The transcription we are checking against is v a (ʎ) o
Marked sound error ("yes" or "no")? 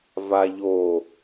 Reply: no